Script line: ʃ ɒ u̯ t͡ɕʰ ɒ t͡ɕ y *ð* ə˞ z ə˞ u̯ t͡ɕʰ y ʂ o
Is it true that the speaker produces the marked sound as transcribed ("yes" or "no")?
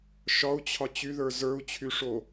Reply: yes